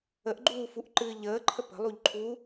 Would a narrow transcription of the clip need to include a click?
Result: yes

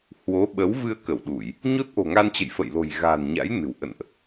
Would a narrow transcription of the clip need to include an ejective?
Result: no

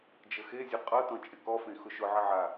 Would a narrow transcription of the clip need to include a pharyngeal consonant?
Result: yes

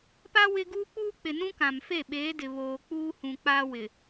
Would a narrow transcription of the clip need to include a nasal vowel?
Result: yes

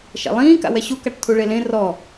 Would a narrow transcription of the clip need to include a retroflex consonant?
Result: yes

